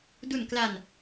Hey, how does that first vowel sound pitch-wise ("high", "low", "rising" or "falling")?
low